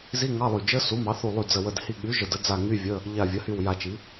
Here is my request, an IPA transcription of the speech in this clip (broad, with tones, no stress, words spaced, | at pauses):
zi˧˥˧ŋɑ˧˥˧lˠy˧˩ d͡ʒə˧˥˧su˩˥ mɑ˩˥θu˧˩lˠy˧˩ d͡zə˧˩wə˧˩d hi˧˩ɠy˩˥ ʒə˧˩də˩˥ d͡za˧˩ ŋy˧˥˧vʲə˧˥˧ | ʎa˧˩vʲə˩˥hy˧˩w ja˧˩t͡ʃi˩˥